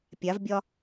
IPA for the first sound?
pʲ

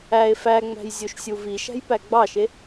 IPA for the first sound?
æ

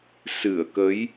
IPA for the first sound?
s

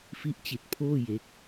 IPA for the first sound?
f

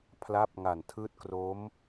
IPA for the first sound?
pʰ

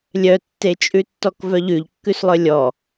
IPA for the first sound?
lʲ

